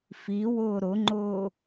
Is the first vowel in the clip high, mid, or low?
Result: high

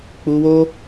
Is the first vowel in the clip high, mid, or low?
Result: high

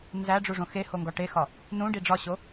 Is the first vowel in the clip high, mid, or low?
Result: low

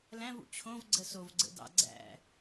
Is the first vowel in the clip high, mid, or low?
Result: low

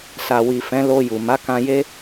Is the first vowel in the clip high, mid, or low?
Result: low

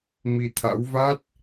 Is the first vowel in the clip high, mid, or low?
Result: high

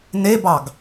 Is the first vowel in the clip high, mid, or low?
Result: mid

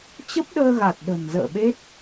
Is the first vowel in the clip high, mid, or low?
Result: mid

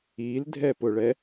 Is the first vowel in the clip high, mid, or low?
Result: high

